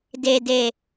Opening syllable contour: low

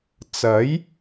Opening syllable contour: rising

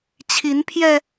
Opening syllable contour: rising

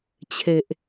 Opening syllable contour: low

